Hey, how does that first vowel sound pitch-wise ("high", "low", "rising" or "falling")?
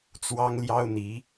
high